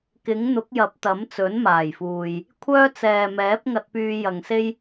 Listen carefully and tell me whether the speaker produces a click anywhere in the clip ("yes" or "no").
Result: no